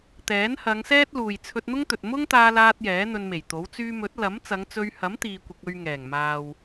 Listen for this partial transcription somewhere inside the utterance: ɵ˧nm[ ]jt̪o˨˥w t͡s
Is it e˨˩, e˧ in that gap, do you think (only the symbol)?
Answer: e˨˩